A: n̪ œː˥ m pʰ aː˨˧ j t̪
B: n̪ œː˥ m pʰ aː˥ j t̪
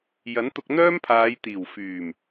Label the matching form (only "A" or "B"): A